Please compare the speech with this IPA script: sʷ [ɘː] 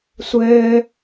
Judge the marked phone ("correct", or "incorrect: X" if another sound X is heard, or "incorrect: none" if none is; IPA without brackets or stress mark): correct